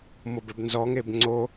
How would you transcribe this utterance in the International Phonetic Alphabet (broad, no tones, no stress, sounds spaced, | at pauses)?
m ɤ b ɛ b n z ɔ ŋ e b ŋ͡ǀ o